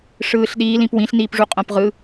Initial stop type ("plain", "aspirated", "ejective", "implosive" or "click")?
implosive